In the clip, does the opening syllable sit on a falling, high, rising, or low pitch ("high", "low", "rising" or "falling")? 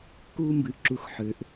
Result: high